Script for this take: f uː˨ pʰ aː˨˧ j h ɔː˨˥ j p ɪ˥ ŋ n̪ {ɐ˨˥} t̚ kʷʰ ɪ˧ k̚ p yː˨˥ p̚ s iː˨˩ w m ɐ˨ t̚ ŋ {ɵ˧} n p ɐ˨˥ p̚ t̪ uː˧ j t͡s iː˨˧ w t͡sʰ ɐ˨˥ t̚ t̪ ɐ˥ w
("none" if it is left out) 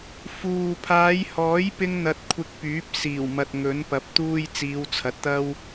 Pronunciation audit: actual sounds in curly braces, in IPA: ɐ˧, ɵ˨˥

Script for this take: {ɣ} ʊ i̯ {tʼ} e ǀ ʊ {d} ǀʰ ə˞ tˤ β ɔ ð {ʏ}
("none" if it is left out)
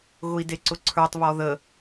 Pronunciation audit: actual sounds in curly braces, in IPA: ɣ, d, none, ə

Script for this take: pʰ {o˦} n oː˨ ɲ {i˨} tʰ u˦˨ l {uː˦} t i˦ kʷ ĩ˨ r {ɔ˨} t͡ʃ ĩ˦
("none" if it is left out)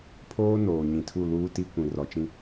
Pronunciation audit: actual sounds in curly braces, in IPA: oː˦, ĩ˨, uː˦, ɔ˨

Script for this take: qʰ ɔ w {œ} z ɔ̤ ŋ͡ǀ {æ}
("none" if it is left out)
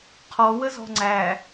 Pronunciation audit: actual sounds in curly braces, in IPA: ə, æ

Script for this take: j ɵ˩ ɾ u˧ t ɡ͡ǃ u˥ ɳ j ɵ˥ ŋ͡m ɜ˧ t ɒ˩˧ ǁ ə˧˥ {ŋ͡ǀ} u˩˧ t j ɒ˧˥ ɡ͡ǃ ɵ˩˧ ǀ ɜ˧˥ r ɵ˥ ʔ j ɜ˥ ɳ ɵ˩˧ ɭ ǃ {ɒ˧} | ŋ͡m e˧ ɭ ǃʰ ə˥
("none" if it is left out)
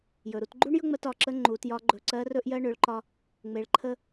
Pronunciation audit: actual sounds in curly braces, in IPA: ŋ͡ǃ, ɒ˧

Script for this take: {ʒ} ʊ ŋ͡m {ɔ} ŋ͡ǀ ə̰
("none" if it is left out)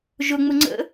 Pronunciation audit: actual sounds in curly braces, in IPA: ʒ, ʊ

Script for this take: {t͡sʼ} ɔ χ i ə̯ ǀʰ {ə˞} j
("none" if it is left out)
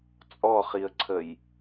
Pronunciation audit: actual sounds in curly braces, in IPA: t͡sʼ, ə

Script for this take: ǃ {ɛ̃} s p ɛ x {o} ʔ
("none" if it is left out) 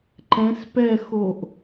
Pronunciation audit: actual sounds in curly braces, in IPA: ɛ̃, o

